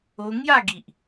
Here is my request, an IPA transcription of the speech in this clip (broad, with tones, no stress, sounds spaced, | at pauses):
o˧ ŋ j a˥˧ ɡ i˨ ʔ